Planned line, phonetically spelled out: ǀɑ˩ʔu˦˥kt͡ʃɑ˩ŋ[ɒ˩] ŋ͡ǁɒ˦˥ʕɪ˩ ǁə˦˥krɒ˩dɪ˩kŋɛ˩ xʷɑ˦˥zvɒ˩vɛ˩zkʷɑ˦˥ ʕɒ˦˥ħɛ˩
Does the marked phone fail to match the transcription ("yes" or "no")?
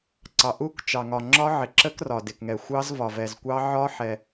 no